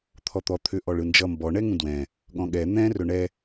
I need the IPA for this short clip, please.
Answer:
t̪ʰ ɔ t̪ ɔ t̪ʰ ʏ ʔ ɔ ɭ ɯ n d͡ʒ ʌ m b ɔ ɳ ɛ ŋ ũ d w ɛ̃ | ɠ ɔ̃ ɠ ɛ n̪ ɛ̃ r ɵ ɳ ɛ

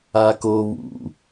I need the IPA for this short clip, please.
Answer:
a k o β ṵ

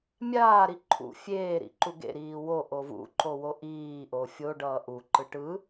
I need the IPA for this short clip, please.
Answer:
mʲ aː ɾ i ǃʰ ṵ fʲ eː ɾ ḭ ǃ u ɡ ḛ ɾ iː w o ʔ o v ṵ ǃ o w o ʔ iː ʔ o fʲ o ɖ ʌː ʔ u ǃ ɯ ʈ ɯ

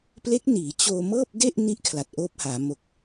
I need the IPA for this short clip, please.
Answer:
p l e˦˥ k̚ n iː˩˦ t͡ɕ oː˧ m ɤː˥˩ p̚ d e˥˩ ʔ n i˦˥ ʔ kʰ l a˨˩ t̚ ʔ oː˦˥ p̚ h aː˩˦ m o˨˩ k̚

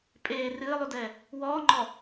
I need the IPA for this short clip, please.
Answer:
pʼ eː r ɨː lˠ u d ɛː | w ɔː ŋ͡ǃ ɔ

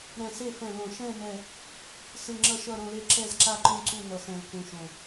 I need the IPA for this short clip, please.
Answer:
ɾ ɛ̃˨˩ s e˦˨ f ɛ̃˨˩ l õ˨˩ ʃ ɛ̃˦˨ n ɛ˨˩ | s ɯ˨˩ ŋ͡ǁ ʌ˦˨ ʃ ʌ˦˨ ɾ õ˦˨ l e˦˨ ǁ ɛ˦˨ z ǁ a˦˨ ǃ ũ˦˨ ǀ u˦˨ n ʌ˨˩ s ɛ̃˨˩ l k ũ˨˩ ʃ õ˨˩

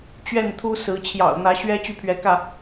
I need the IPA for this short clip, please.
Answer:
t͡ɕ ɥ ɛ˥˨ n t̪ʰ u˦ s ɹ̩˨˦ t͡ɕʰ j ɑ̰˨˩ ʊ̯ n̪ ä˨˦ ɕ ɥ ɛ˦ t͡ɕ y˥˨ pʰ ɥ ɛ˨˦ k ä˥˨

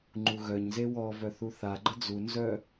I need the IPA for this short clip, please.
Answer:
ŋ͡ǃ u ɣ œ ɲ z e w ɔ v œ θ u θ a ɡ͡ǃ ə d͡z u n z œ

